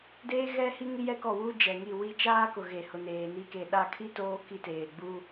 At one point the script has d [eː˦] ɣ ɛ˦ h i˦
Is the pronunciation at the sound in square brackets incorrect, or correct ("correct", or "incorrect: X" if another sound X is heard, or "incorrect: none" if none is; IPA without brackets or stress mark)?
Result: correct